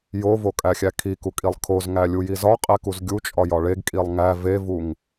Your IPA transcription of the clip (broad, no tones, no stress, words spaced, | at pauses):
jovokʼæxʲæ kʰikukʼilˠ kʰozŋælʲuji zɒqʼekuz ɡʲut͡ʃʼɒjɒ ɭeɡkʼilˠ ŋæ vevuŋ